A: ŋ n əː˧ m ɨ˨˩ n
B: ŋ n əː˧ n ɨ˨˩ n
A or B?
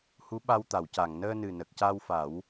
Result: B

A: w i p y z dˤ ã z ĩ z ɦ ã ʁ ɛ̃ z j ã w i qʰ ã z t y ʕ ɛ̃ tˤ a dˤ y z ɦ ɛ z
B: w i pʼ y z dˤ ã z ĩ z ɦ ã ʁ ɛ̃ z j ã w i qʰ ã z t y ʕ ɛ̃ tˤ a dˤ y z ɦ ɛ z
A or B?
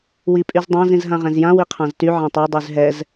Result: B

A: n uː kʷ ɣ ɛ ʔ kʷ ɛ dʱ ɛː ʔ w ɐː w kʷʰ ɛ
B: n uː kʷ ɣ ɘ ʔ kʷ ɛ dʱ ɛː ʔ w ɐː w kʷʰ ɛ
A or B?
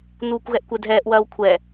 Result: A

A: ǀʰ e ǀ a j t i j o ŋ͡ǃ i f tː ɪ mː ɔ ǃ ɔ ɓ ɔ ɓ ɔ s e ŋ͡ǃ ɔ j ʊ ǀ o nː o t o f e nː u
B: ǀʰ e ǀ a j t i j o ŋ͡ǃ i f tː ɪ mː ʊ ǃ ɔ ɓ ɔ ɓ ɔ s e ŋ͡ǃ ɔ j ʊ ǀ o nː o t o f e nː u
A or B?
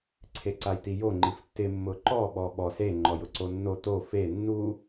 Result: B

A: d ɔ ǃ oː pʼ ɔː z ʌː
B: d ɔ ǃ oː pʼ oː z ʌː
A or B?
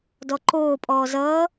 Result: A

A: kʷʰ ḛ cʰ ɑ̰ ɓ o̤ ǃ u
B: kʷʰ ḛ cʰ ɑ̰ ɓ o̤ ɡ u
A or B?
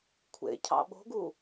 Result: B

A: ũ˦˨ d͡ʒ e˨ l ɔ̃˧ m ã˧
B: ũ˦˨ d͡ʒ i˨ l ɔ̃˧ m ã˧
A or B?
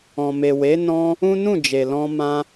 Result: A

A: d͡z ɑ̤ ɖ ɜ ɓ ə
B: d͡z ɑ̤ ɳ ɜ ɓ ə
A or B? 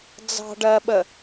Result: A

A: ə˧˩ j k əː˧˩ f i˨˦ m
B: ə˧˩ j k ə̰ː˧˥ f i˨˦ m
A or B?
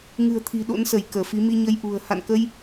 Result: A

